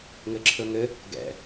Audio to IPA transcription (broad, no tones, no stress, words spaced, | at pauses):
ŋɘǁʰɵŋɘ | ɡɛ̰